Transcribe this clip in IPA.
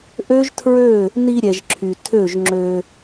ʔ ø˦ ʒ tʰ ɹ ø˦˨ | n i˧ ɾʲ ɛ˨ ʒ ǁʰ y˨ tʰ ø˦˨ ʒ ŋ͡ǁ ø˧

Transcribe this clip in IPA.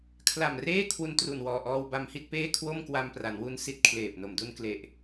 kʰ l a˨˩ m r eː˥˩ kʰ w u˧ n t r u˨˩ n w ɔː˨˩ ʔ ɔː˧ w b a˧ m h i˥˩ t̚ p eː˥˩ kʰ w o˥˩ m k w a˧ m p r a˩˦ n w u˧ n s i˥˩ t̚ kʰ l eː˨˩ p̚ n o˨˩ m d u˧ n k l e˨˩ ʔ

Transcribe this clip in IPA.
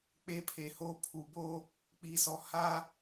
k͡p e˦ pʰ e˨ h oː˦ pʰ u˨ b oː˦ | k͡p iː˨ s ɔ˨ h aː˦

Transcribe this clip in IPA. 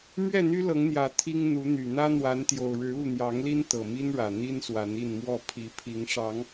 m ɥ ɛ˥˨ n̪ y˦ l ɤ˨˦ ŋ n̪ j ä˨˩ t̪ʰ i˦ ŋ n̪ u˨˦ n̪ y˨˩ n̪ ä˦ n̪ w a˨˦ n t̪ j o˨˩ ʊ̯ ɻ ɻ̩˨˦ u˥˨ n̪ j ɑ˨˦ ŋ l i˦ n t̪ ɤ˨˩ m i˦ n ɻ ä˨˩ n̪ i˦ n s w a˨˦ n i˥˨ n m w ɔ˥˨ pʰ i˨˦ pʰ i˨˦ ŋ ʂ ɑ˨˦ ŋ

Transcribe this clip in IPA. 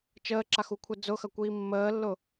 t͡ʃ əː ǁ a x u kʷʰ ɛ d͡z ʊ x ɐ kʷ iː mː əː lː ʊ

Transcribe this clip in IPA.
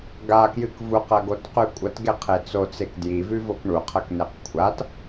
ɡ a k j ɨ k v u q ɐ ɡ o t q ʉ kʷʼ ɐ t ɡ e qʰ e t͡s o t͡s e k d j i v ʉ v o k ɳ u qʰ ɐ k n e q kʷʰ a t

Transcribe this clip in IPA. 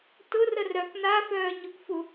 t ʊ r ə r œ k n a f œː ɲ ʊ k f u

